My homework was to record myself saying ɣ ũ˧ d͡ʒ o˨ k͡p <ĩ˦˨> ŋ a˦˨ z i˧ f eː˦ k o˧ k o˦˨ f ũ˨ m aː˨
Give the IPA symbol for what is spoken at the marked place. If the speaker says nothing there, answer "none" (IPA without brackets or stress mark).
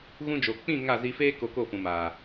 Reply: ĩ˦˨